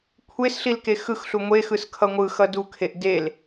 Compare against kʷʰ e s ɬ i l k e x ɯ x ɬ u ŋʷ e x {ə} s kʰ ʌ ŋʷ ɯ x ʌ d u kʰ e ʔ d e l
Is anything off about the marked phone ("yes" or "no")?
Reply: yes